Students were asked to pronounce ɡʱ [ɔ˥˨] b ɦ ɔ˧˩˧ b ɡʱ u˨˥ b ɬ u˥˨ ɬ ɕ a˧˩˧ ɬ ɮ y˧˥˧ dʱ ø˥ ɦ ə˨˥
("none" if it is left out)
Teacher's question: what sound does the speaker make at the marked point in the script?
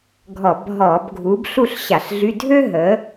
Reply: ɔ˧˩˧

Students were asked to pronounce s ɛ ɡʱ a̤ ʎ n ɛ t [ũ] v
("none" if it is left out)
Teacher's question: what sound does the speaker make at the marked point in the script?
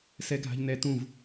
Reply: ũ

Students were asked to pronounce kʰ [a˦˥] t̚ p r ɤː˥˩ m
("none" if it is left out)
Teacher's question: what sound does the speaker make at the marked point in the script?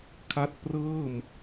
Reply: a˦˥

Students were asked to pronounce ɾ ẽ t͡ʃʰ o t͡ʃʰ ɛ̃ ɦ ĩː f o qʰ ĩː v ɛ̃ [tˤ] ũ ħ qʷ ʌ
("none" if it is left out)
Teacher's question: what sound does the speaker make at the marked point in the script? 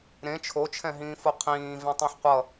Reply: tˤ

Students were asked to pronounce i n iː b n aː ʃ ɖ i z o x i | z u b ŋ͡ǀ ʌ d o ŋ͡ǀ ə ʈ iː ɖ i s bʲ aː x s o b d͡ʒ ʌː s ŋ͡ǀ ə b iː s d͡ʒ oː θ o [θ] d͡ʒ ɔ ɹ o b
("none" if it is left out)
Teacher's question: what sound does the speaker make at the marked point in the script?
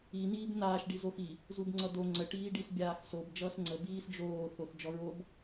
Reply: θ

